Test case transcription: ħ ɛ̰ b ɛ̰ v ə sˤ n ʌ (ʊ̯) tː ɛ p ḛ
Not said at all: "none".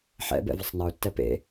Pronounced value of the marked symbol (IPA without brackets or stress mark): ʊ̯